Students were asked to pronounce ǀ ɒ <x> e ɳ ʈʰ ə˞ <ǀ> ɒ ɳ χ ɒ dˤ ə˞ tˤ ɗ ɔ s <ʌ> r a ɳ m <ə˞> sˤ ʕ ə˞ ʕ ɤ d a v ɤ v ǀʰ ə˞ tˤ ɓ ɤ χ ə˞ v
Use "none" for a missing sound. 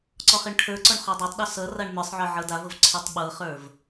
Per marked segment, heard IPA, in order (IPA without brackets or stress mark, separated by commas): χ, ǀ, ʌ, ə˞